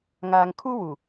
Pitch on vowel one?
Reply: low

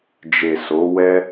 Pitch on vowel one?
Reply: low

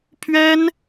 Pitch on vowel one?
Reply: high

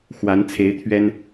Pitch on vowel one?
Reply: rising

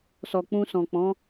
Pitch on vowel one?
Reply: low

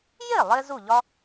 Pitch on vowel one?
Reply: falling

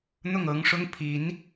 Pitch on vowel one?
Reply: falling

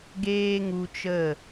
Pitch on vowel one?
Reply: high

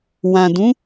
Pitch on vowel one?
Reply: low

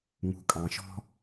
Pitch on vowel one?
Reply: low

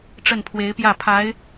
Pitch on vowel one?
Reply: falling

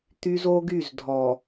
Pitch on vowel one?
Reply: high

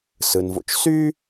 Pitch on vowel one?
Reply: low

